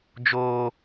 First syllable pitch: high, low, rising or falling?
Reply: high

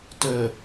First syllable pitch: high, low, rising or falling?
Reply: low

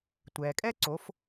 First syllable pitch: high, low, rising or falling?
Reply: low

